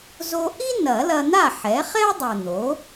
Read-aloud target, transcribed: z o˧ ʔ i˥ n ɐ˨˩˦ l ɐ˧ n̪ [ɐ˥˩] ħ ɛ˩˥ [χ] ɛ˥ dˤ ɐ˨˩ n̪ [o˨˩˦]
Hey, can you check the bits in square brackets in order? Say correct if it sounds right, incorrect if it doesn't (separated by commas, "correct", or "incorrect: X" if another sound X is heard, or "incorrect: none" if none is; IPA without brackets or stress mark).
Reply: incorrect: a˥˩, correct, incorrect: o˩˥